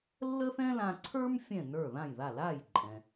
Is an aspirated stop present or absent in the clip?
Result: present